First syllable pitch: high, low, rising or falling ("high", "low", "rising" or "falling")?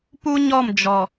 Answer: high